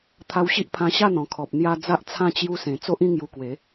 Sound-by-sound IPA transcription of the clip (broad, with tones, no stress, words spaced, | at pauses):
t̪ʰa˧wɕi˦ʔpʰã˧ ɕa˥˧n̪ɔ̃˨˩kʰɔ˨p̚ n̪ja˧ d͡za˦ʔt͡sʰã˥˧ t͡ɕju˧sẽ˨˩ t͡so˦ʔĩ˥˧ŋju˧kwe˨˦